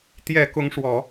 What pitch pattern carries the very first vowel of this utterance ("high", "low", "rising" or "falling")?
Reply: low